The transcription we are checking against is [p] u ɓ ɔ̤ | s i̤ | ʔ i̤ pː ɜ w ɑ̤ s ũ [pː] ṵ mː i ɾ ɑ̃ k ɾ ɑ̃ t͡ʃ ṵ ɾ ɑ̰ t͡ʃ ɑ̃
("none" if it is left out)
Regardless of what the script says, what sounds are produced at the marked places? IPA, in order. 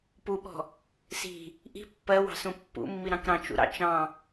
p, pː

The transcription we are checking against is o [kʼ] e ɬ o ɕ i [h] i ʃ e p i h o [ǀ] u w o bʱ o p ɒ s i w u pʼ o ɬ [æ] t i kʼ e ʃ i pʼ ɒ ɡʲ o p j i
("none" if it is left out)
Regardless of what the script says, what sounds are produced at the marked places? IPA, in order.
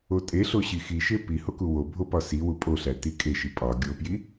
tʼ, x, k, æ

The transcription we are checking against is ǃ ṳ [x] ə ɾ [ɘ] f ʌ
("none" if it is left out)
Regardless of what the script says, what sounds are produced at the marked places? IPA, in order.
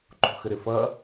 x, ɘ

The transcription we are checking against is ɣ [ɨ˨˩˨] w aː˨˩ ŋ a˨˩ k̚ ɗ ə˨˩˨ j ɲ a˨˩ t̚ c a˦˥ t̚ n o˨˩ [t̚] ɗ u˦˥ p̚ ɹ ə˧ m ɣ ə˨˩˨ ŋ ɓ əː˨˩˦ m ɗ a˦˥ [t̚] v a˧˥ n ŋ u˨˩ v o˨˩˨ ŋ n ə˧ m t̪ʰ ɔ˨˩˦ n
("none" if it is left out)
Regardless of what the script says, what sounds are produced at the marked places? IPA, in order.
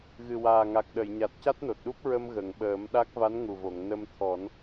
ɨ˨˩, t̚, k̚

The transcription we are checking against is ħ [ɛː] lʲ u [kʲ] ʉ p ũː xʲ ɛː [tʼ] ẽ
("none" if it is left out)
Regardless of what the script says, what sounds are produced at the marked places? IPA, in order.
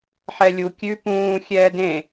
ɛ, kʲ, d

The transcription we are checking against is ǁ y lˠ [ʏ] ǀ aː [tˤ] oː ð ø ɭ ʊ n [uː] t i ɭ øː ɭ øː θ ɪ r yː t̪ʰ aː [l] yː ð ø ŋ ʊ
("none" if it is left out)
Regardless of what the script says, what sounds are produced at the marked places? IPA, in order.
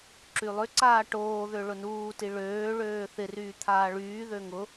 ʏ, ʈ, uː, ɭ

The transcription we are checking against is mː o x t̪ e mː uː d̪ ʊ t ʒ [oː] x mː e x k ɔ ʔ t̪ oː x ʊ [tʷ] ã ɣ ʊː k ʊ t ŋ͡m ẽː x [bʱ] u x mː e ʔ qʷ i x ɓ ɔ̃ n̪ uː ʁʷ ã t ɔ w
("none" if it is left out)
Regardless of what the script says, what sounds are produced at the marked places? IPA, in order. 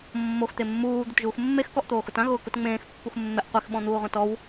uː, t, pː

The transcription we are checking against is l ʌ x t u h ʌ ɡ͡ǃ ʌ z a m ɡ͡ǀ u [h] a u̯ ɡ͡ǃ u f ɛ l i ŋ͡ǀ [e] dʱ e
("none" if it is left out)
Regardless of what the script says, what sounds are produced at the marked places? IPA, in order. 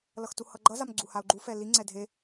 h, ɛ

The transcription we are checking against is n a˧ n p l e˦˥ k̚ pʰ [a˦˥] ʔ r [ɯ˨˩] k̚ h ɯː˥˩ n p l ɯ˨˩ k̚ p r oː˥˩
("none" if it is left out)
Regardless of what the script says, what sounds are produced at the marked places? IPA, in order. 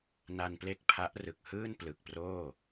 a˦˥, ɯ˨˩

